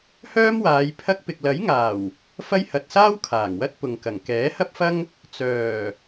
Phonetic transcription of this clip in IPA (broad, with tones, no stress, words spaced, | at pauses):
hœː˥mwaː˨˧j pʰɐ˧k̚pɪ˨k̚lɐ˨˥jŋaː˨˩w | fɐ˥j hɐ˨t̚saː˥w kʰaː˨˩ŋwɐ˥t̚ pʊ˨ŋkɐ˨˩ŋ kɛː˨˥hɐ˥p̚fɐ˥ŋ | t͡sœː˨˩